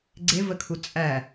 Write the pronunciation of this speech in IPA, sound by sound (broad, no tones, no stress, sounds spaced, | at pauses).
ɡ͡ǀ e v ə kʰ u t͡sʼ æ